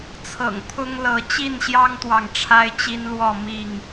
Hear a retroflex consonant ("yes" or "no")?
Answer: yes